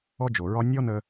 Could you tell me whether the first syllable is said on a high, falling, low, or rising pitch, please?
high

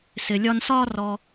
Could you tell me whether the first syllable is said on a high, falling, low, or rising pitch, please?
low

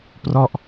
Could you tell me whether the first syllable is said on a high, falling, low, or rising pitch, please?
falling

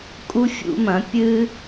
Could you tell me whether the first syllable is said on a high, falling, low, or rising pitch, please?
high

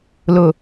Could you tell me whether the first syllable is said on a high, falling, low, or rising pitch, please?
low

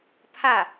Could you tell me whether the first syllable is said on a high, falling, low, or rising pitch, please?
falling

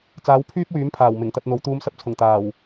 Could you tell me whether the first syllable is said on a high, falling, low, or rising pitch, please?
rising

